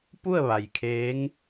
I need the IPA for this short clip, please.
p u˥˨ ə̯ ʋ a˩ j kʰ eː˧˥ ŋ

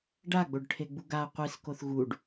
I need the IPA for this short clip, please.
ɖ a ɡ͡b o ɖ ʈʰ e ɡ͡b u ɡ a qʷ i s k o θ ɣ u ɖ

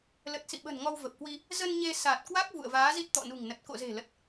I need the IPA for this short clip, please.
l ə˨˩ t̚ s ḭ˧˨ ɓ ə̤˨˩ n ŋ ɔ˧ w v ə˨˩ p̚ k w i˧ | z ə˧ n ɲ e˧ s a˨˩ t̚ k w a˦˥ k̚ v ṵ˧˨ ə̯ v aː˨˦ z i˦˥ t̚ t̪ ɔ̰˧˨ n ṳ˨˩ ŋ n ə˨˩ t̚ k o̰˧˨ z e̤˨˩ l ə˨˩ t̚

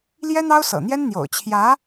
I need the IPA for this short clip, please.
l j ɛ˥ n̪ ɑ˥ ʊ̯ s ɤ̰˨˩ n̪ j ɛ˥ n n̪ j o̰˨˩ ʊ̯ t͡ɕʰ j ä˧˥

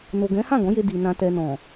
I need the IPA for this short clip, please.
n o˨ ɡ ɛ̃˨˦ h ã˦˨ ɡ ɔ̃˨˦ j e˧ d i˨ n ã˨ t ɛ˨ n ɔ̃˨

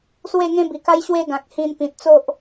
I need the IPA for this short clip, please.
s w e˥˧ ŋ ẽ˦ b i˨˩ k a˦ j ɕ w e˧ ɡ ã˨ k̚ h ĩ˧ n p ĩ˨ t̚ t͡s o˦ ʔ

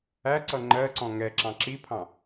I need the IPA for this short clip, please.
æ ǀ ʌ ŋ͡ǃ ɜ ǀ ɔ̃ ŋ ɛ ǁ ɑ̃ ǁ i pʰ ɑ̃

